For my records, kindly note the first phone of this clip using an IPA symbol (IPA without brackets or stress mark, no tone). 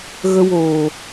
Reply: ɣ